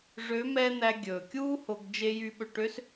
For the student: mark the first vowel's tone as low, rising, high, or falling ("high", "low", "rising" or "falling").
rising